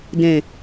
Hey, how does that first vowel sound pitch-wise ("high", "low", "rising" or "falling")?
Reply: low